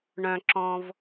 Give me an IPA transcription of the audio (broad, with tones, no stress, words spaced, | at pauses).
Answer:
ɳœ̃˩ǁɔ̃˩v